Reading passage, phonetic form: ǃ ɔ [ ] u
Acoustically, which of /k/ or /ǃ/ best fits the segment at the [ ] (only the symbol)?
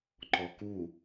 k